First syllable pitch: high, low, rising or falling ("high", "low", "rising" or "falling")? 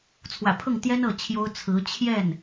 low